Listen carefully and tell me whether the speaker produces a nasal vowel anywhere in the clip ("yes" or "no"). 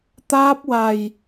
no